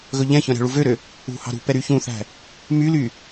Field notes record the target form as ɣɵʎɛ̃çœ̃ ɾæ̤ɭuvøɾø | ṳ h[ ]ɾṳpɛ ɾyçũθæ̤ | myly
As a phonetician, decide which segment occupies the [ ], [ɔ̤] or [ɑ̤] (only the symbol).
ɑ̤